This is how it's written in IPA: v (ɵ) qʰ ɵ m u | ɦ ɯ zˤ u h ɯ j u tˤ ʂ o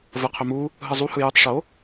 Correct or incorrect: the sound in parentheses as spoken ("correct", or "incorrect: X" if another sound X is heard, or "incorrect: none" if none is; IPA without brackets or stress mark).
incorrect: ə